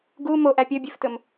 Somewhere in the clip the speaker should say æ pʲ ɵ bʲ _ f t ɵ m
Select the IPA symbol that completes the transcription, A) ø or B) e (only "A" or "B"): A